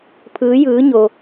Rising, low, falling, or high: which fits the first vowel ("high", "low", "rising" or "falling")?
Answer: rising